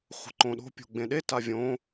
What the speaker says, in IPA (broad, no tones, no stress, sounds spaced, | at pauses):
χʷ ə̤ ǃ õ ɗ o̤ pʲ o̤ ɡ͡b ẽ ɗ e t a vʲ õ